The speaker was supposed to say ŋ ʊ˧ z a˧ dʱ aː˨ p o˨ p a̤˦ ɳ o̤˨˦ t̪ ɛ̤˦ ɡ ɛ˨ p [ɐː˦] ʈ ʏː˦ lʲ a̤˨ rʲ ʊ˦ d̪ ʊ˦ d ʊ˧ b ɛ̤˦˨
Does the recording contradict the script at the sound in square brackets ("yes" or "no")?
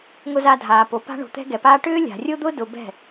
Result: yes